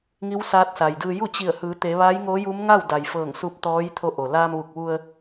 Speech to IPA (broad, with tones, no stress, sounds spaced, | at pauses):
ŋ i˧˥ w s aː˧˥ t̚ s a˩ j d ɯː˧ j u˥˨ t͡ɕ i˧˩ ə̯ h ɯː˩˧ t̪ e˩˧ ʋ a˧˥ j ŋ o˧˥ j u˧˥ m ŋ a˥˨ w d a˩ j f ɤː˧˩ ŋ s u˧ p̚ t̪ ɔː˧˥ j t̪ʰ o˧ ʔ o˩ l aː˧ m ʋ u˧˩ k̚ ʋ u˧ ə̯